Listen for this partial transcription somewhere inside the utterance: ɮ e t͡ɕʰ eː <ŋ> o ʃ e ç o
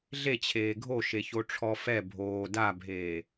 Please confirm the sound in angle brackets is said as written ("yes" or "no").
no